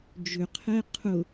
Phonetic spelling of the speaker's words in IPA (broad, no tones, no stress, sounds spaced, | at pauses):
d͡ʒ ʏ qʰ ɛ qʰ ʊ